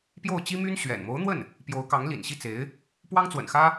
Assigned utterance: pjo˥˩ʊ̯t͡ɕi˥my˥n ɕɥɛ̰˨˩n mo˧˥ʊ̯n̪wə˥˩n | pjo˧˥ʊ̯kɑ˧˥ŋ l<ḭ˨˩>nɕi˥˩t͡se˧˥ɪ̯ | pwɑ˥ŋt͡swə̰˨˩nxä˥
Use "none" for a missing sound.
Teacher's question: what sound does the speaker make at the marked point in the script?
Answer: ḭ˨˩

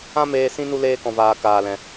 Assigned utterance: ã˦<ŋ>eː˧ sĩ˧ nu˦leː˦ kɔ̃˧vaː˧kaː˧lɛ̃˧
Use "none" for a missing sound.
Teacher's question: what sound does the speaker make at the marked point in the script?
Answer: m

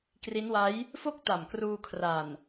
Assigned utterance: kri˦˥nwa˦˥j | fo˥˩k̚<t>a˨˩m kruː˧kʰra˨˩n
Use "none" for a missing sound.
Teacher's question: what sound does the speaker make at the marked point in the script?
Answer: t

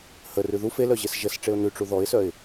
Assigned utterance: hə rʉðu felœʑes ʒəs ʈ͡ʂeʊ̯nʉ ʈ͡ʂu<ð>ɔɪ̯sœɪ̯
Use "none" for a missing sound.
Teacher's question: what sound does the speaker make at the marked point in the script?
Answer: ð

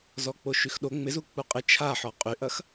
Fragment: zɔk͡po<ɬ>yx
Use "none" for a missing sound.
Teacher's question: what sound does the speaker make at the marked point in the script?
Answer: ʃ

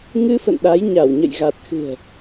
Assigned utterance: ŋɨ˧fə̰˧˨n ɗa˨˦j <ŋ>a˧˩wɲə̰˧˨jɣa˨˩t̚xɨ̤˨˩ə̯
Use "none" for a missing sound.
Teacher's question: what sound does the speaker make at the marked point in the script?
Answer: ɲ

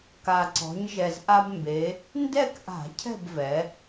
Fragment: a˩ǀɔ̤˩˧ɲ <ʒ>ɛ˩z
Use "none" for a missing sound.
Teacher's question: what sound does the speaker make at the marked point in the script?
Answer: ʒ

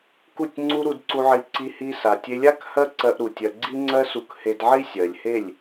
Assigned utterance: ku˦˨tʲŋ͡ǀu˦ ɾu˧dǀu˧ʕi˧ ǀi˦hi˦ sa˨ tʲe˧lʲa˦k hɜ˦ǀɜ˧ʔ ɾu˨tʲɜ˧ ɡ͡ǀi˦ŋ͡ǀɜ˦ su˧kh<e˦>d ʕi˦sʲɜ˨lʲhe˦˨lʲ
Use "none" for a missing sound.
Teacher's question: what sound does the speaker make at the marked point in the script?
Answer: e˧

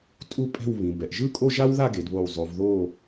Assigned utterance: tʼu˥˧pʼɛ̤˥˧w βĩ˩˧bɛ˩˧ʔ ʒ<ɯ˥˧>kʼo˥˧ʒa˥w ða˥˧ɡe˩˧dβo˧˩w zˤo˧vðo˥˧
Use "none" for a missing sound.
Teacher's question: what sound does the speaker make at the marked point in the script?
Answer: ɯ˥˧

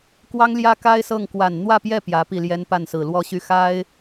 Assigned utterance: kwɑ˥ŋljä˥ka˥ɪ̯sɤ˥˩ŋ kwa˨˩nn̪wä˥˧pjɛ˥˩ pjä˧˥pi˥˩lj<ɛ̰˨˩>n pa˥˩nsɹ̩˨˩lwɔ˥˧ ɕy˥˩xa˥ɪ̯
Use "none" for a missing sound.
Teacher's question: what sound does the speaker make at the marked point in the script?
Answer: ɛ˥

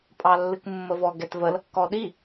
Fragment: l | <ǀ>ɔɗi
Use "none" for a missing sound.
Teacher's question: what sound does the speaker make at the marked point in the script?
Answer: k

